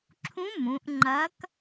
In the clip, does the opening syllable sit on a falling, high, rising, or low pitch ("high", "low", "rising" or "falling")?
rising